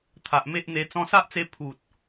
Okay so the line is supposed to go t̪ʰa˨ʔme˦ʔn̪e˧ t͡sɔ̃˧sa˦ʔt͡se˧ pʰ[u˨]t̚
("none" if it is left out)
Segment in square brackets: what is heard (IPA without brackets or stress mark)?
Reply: u˨